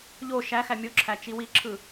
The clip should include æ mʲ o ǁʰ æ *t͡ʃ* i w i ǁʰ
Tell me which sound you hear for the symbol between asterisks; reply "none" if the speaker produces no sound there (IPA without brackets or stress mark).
t͡ʃ